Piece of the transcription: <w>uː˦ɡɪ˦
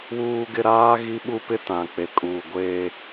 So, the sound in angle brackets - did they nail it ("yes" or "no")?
yes